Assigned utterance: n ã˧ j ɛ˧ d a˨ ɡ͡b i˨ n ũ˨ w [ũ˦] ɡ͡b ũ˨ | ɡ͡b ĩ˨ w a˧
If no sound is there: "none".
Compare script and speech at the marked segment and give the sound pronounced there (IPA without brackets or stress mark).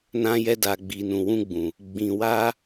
ũ˧